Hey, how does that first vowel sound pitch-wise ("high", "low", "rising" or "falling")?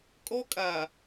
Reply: high